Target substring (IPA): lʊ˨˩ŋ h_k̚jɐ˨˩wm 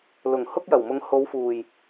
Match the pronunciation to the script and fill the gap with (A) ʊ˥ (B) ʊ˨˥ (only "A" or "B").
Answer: A